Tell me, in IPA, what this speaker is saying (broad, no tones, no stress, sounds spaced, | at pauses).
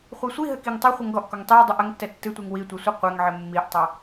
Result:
χʷ i sʷ i ɦ ɘ k i ŋ tˤ ɐ χʷ ɘ ŋ ɡ ɔ ʔ k ɔ ŋ tˤ i ɐ̯ dˤ ɨ ʔ ɐ ŋ tː ɛ tː ɨ tʷ i ŋ w i tʷ i sʷ ɨ qʷ ɛ ŋ ʕ ɘ mː i ʔ tˤ ɐ